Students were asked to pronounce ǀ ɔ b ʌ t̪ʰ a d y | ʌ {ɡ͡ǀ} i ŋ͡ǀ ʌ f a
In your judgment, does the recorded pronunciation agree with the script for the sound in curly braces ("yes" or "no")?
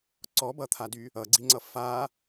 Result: yes